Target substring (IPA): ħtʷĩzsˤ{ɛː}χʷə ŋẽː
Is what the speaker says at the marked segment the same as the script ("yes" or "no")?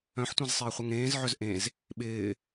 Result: no